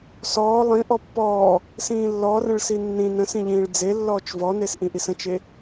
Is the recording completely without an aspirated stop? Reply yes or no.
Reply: yes